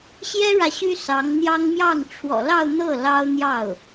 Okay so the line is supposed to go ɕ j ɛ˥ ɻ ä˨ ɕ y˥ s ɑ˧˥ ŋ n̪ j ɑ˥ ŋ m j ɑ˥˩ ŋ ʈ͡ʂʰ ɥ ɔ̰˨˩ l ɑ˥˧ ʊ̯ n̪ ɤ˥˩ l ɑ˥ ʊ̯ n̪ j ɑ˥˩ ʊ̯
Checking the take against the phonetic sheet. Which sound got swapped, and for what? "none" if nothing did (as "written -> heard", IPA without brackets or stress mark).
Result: ɥ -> w